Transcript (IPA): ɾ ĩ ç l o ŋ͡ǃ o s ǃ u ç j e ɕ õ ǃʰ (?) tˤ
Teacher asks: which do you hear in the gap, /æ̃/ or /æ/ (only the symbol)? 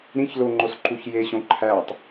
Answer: æ